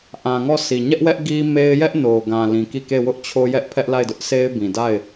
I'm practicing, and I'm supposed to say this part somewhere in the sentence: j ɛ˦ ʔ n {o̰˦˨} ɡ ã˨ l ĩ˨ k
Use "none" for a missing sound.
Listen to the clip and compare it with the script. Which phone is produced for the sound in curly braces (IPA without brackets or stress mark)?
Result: o˨